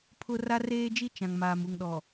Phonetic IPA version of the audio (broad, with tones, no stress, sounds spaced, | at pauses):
pʰ ʊ˨ r a˦ r eː˦ d͡ʒ i˦ t͡ʃ ã˨ ŋ m aː˨ m u˨ ŋ ɗ ɔ˨